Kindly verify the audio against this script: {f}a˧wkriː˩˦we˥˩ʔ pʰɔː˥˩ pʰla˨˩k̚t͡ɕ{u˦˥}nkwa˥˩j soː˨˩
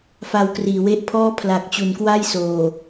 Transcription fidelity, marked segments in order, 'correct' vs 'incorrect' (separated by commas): correct, incorrect